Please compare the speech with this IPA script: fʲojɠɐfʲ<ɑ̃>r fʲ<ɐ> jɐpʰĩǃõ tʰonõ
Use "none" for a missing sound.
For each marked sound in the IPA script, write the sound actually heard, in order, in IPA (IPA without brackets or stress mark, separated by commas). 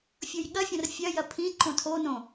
ɐ̃, ɐ